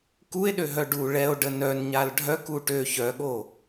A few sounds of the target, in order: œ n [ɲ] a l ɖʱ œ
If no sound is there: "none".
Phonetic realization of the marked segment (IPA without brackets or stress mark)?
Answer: ɲ